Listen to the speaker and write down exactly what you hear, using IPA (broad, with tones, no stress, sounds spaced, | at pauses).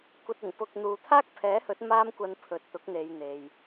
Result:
kʷ ɐ˨ t̚ ɪ˨˩ ŋ p ʊ˨ k̚ n̪ uː˨ t̪ʰ aː˥ k̚ pʰ ɛː˨˥ h ɵ˨˥ t̚ m aː˥ m kʷ ɐ˧ n pʰ ɵ˨ t̚ t̪ ʊ˨˥ k̚ n̪ e˨˧ j n̪ e˨ j